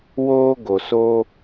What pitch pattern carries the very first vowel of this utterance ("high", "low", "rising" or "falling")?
high